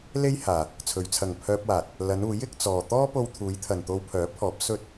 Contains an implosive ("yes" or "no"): no